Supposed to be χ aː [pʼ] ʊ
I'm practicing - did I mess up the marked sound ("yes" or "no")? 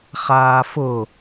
yes